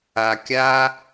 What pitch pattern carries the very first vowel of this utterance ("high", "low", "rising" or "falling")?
low